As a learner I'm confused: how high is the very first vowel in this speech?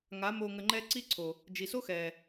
low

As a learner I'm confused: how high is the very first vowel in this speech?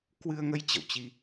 high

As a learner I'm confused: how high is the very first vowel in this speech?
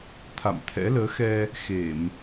low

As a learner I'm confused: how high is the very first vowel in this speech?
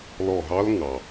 mid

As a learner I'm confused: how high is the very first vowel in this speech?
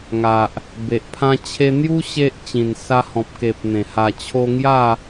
low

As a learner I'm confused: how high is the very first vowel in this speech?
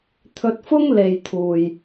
mid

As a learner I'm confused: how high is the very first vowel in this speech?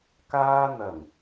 low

